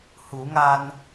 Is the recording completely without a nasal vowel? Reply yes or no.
yes